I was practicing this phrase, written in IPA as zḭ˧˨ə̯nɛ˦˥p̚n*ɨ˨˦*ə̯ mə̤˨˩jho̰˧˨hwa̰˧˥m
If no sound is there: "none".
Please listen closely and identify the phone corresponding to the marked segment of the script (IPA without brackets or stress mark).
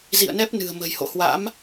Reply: ɨ̤˨˩